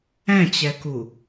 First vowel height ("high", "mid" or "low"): mid